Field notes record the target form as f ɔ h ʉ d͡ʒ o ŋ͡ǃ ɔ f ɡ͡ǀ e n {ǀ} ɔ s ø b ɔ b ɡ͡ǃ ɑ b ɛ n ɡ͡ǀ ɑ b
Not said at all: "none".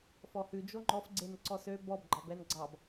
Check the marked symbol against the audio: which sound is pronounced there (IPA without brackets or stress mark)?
ǀ